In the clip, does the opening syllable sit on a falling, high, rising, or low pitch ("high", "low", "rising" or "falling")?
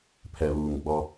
low